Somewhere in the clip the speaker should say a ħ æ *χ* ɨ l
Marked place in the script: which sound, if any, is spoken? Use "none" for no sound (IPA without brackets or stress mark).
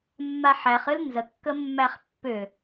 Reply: χ